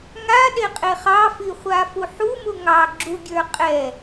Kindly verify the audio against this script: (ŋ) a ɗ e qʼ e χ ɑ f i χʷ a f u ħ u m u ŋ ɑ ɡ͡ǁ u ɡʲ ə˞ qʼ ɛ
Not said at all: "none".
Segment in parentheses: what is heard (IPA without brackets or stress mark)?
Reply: ŋ